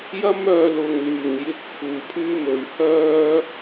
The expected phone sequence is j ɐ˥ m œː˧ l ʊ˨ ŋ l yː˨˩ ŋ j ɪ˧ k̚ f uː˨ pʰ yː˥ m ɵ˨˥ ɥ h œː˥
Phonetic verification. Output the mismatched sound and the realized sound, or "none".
none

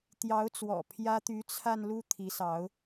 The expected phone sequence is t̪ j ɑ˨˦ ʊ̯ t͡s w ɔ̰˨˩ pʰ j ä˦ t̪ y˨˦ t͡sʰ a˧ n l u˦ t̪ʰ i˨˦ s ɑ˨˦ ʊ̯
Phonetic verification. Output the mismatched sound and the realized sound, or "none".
none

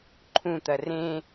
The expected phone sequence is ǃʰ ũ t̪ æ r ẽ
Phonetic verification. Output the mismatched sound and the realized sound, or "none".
æ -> ɐ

